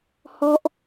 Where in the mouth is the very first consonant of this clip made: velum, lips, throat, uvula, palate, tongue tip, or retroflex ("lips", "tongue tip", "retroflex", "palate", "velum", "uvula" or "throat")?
throat